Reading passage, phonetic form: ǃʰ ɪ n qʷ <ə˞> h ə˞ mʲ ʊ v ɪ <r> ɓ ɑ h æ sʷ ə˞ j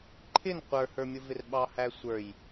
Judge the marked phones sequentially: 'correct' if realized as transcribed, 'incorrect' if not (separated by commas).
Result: correct, correct